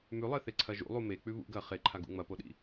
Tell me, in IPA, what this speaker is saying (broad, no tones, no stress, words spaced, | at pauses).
mʉlˠeθeǀʰɐ ʒṵlˠu mek͡pʉ βṵ ɡɐ χeǃʰaɡṵ ŋ͡mɐpoɗḭ